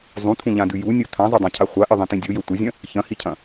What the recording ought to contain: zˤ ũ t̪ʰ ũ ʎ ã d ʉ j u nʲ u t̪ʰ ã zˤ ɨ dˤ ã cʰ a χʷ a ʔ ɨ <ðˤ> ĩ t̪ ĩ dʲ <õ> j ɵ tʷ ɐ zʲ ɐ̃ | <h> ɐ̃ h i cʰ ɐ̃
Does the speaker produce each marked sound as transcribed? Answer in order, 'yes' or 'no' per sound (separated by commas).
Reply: yes, no, no